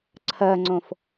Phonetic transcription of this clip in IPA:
ǀʰɜŋ͡ǀõf

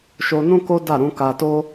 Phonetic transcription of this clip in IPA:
ʃo˧nũ˦ko˦ da˦˨ɾũ˨˦ka˧ to˦

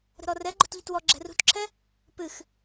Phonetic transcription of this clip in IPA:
ɾə̤ɾɔrɛɡ͡ǃo̤t ʎytwɔ ɡ͡ǁɛ̤rṳtǁʰɛ | pɨx

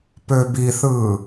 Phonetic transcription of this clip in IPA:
pøbiθɯː

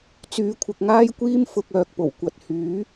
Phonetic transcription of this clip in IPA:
t͡syː˨kʷʰɪ˨k̚ŋaː˥jkʷiː˥m fʊ˧k̚ œː˧k̚po˨˩w kʷɐ˨t̚ hyː˨˥

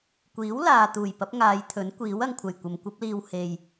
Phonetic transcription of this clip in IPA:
kʷiː˨˥w laː˨t̪uː˨˩j pɐ˨˥p̚ŋaː˨˧jt̪ʰɵ˨˥n kʷiː˨˥wɐ˧ŋkʷʰɐ˨˩j kʷɐ˨mkʷɐ˥p̚liː˧w he˨j

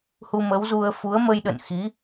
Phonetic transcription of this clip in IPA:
hu˧mə˨˦wzu˧ə̯ fu˨˦ə̯mə˧jɗə̰˧˨n xi˨˦

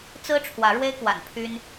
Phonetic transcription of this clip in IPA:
t͡sɹ̩˦ ʈ͡ʂʰwä˨˦ɻwe˦ɪ̯kwa̰˨˩n pʰy˦n

